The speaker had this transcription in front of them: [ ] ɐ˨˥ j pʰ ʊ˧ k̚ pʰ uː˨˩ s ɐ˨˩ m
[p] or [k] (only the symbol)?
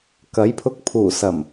k